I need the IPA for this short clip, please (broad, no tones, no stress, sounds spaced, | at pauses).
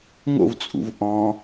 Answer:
ŋ o̰ v t͡sʼ ṵ v ʔ ɔ̃